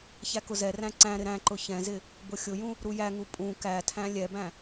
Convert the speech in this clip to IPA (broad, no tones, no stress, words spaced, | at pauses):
çækʊzɛræ̃ ǀæ̃ɾɪ ɾæ̃ǃʊ çɛ̃zɪ | bʊxʲʊjũ | ɾujæŋu pʼũ kætʰæ̃ lʲɛbæ̃